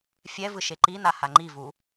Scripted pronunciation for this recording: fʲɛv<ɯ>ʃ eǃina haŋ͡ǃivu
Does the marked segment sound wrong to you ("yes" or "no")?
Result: no